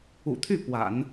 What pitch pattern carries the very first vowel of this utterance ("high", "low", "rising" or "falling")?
low